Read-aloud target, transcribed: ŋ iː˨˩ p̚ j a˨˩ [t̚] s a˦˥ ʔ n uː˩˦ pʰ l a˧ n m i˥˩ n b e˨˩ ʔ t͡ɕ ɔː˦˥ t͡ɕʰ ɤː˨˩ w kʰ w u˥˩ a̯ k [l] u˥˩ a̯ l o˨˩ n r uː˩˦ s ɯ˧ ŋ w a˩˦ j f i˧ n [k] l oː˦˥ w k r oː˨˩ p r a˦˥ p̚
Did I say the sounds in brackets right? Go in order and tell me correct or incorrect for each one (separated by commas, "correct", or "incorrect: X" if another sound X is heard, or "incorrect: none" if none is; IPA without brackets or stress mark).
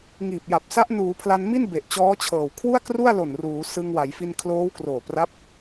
incorrect: p̚, incorrect: r, incorrect: kʰ